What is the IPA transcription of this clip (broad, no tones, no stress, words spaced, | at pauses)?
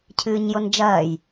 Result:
cʰɨːɲjond͡ʒɐːj